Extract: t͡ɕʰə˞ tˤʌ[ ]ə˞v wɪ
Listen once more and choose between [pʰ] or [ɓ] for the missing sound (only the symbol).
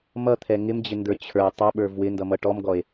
ɓ